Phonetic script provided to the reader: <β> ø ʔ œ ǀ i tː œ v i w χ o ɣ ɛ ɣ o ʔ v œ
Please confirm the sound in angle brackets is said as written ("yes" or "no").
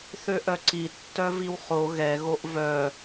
no